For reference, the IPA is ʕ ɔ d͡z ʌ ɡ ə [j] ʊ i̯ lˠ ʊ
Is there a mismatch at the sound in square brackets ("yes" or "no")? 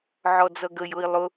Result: no